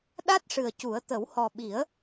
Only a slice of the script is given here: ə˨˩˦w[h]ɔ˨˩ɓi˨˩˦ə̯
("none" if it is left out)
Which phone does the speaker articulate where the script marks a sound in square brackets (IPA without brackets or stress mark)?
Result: h